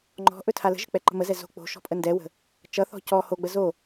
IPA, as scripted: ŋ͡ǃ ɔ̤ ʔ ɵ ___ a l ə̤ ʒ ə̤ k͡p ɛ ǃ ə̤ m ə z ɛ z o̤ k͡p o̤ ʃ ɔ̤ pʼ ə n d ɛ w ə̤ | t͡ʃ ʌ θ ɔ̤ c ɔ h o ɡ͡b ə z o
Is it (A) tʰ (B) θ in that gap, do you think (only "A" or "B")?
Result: A